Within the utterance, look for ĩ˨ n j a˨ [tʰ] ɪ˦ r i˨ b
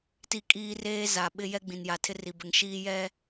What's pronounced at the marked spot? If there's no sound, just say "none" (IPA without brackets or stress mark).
tʰ